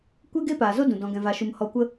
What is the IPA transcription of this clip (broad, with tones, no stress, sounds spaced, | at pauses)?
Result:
kʷ e˦ ɡ e˦ p aː˨ z o˦ d ũ˨ d ɔ̃˧ ɡ ɛ̃˧ v a˧ ʃ u˧ m h ɔ˧ kʷ ə˦